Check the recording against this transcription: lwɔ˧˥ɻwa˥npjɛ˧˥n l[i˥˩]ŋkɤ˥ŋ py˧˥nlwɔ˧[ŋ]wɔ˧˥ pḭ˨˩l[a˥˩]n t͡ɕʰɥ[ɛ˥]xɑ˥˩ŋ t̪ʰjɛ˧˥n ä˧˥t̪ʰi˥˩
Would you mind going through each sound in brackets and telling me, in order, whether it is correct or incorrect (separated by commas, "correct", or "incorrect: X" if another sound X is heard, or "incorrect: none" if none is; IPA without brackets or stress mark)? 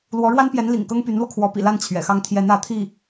incorrect: ḭ˨˩, incorrect: kʰ, correct, incorrect: ɛ̰˨˩